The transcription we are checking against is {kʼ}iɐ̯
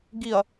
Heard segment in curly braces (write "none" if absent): ɡ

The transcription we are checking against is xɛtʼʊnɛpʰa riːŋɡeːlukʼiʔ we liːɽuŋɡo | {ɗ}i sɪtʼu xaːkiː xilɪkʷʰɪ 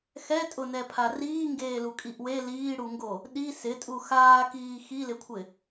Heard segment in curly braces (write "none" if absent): ɗ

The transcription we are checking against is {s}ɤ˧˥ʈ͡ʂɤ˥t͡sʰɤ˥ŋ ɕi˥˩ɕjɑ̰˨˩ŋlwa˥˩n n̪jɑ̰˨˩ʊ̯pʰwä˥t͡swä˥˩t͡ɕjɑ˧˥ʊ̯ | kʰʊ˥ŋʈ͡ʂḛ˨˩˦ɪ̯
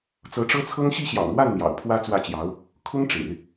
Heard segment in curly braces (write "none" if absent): t͡s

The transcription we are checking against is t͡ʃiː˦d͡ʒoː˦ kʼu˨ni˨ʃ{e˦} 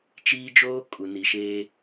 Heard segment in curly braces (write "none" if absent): eː˦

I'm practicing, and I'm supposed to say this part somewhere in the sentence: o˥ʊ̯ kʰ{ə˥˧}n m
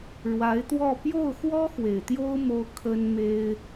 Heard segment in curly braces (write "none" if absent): ə˥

